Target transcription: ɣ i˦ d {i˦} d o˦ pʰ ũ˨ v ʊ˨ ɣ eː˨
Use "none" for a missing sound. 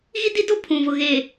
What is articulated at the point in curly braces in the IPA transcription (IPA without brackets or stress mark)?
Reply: i˦